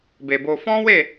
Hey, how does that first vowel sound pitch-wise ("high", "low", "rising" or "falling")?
low